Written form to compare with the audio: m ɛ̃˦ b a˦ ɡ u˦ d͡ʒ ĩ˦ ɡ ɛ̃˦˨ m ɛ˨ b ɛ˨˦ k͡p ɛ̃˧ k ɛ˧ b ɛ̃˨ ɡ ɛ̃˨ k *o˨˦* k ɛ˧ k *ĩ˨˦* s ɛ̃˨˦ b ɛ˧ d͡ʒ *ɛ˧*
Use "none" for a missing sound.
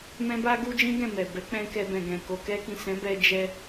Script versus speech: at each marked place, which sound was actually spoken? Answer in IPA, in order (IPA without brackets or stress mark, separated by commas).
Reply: o˨, ĩ˨, ɛ˧